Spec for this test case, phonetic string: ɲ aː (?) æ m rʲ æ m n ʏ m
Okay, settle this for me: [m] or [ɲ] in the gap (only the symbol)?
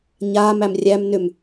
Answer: m